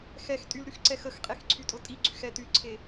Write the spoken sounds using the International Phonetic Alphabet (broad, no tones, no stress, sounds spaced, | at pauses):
x ɛ x tʼ y l ɾ y x ǀ ɛ x ə x qʼ e x ǀʰ y tʼ ʊ tʼ i ɡ͡ǀ y x ɛ t y ǀʰ e